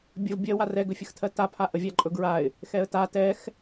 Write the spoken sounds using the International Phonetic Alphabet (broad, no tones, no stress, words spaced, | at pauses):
bʲəv bʲɜwa rɛɡɵfʲəxtʰɜ tapʰa ʔəvʲaǃʼɵɡɹaɪ̯ | xɛə̯ta tɛx